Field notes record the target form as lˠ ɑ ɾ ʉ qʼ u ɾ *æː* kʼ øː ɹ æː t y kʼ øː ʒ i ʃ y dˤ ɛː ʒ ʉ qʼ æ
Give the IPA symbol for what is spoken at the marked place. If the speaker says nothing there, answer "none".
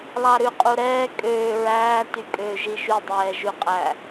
ɛː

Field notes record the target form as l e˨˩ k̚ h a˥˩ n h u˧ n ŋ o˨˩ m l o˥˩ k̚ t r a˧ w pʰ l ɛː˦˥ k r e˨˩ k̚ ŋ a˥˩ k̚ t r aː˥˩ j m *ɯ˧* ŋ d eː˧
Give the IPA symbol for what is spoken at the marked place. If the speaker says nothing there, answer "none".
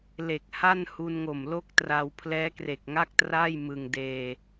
ɯ˧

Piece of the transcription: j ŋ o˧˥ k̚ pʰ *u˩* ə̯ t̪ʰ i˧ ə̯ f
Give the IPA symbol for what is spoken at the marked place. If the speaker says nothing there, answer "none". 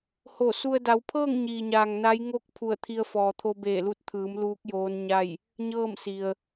u˧˩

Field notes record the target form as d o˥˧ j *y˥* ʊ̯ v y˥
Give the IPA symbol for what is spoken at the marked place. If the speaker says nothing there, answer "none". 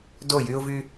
y˥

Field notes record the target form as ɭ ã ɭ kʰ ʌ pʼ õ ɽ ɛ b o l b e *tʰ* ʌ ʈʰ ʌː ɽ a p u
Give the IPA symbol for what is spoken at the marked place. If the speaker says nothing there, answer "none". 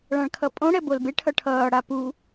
ʈʰ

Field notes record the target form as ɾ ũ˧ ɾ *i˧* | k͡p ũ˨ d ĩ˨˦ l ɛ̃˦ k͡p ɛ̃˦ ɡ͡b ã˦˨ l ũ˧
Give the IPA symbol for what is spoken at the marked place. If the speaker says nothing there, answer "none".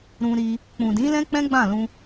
i˧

